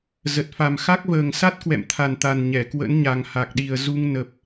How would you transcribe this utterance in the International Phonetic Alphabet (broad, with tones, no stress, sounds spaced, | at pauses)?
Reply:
z ə˨˩ t̚ f a˨˩ m x a˦˥ k̚ v əː˨˩ ŋ s a˦˥ t̚ k w ɛ̰˧˨ m t̪ʰ a˨˩ n t̪ a˨˩ n ɲ ɛ˧˩ k w ə̰˧˥ n ɲ a˨˩ ŋ h a˨˩ k̚ ɗ i˨˩ ə̯ z u˧ ŋ n ə˨˩ p̚